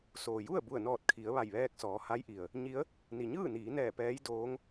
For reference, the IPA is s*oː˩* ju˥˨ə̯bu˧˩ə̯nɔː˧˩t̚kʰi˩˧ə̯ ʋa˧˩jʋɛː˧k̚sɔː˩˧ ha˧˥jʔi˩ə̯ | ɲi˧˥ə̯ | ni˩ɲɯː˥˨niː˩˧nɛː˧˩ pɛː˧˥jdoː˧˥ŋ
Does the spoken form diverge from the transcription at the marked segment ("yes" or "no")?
no